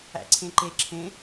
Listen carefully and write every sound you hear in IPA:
æ̰ǀʰẽǃe ǁʰẽ

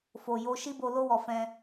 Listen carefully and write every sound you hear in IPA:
fo˨ jo˧ ʃi˦bo˧ lo˧wɔ˨ fɛ̃˧

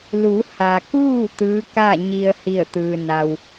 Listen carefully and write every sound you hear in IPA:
lu˩˧ha˩kuː˥˨ t̪ɯː˧˥ka˥˨ɲi˧ə̯ hi˧˩ə̯t̪ɯː˩na˩w

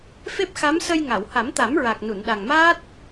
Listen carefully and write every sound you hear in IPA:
fe˦˥p̚xa˧˥m sə˧j ŋa˨˩˨wha˨˩˦mt̪a˨˩˦mɹa˨˩k̚ nu˨˩˨nɗa˨˩ŋmaː˦˥t̚

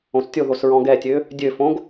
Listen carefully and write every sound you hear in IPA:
õstʲoðos ɹɔ̃ɡɛtʲø | dʲøfõɡ

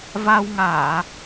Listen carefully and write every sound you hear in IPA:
va˧wŋaː˧˩˨

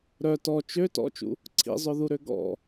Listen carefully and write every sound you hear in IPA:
ɾœ tɔ t͡ʃø tɔ̰t͡ʃṵ | ǀʰḭzˤœðuɾø ɡɔ̰

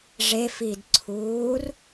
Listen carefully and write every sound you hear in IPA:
ʐefidǀʰuːr

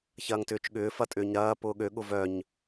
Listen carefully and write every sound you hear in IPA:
çɐːŋtʏːt͡ʃɠʏː fɐtʼʏːɲɾɐː pʊːɠø ɠʊvœɲ

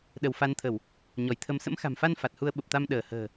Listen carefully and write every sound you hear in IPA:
ɗə˧˩wfa˨˦nt̪ʰə˧˩˨w | ɲɔ˧˩jt̪ʰə˨˦m sə̰˧˥mxa̤˨˩mfa˧n fa˨˩t̚hu˧ə̯ɓə˨˩p̚t̪a˧m ɗəː˧˩hə̤ː˨˩

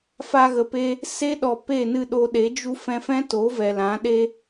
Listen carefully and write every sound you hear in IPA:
fa˧ɣə˨pe˧ | se˦ ɗɔ˧ pe˦˨nɨ˦˨ɗo˧ɗe˨˦ d͡ʒu˦ fɛ̃˧fɛ̃˦to˨˦vɛ˨ lã˨˦ɗe˦

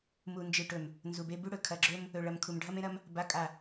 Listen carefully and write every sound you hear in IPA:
mu˨nd͡ʒɨ˨ʈɵ˨m | nzu˨be˦ bʉ˦ɽɵ˨kʰɐ˨ɡ͡ǁɵ˦m | ɵ˨ɭɐ˨m kʰu˨mɖʱɐ˦mẽ˦ɾɐ˦m | ba˨˦kʼa˨

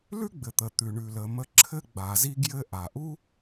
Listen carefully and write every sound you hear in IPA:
lʉ˥ɡ͡bɘ˩t̪ə˩ t̪ʉ˩ɳʉ˩lə˩ mə˧ǁʰɘ˥ɡ͡ba˩zi˥ ɡjɘ˧ ʔa˩ʔu˥

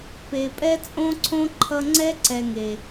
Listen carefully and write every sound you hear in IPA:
pe˨pʼɛ˥t͡sʼõ˥ǀʰõ˥ ǃʰʌ˦ŋ͡ǀɛ˥ ǀɛ˨ŋe˩

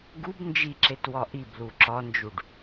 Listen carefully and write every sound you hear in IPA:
ɡub nd͡ʒiǁet wɒʔiblu ǁɒnd͡ʒuɖ

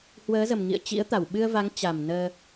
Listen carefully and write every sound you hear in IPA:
hwəː˨˦zə˨˩m ŋḭ˧˨ə̯t͡ɕḭ˧˥ə̯t̪a˧˩w ɓɨ˧ə̯va˨˦ŋ t͡ɕa˨˩mnəː˧

